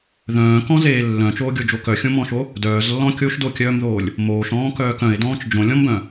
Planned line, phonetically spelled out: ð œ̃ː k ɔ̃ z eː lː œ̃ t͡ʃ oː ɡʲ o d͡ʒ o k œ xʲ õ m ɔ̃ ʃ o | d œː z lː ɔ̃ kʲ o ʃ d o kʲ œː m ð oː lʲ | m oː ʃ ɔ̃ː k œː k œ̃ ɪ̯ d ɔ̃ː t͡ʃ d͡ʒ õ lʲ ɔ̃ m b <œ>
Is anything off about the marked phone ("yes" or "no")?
yes